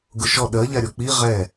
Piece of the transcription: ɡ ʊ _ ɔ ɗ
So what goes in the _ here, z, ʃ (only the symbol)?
ʃ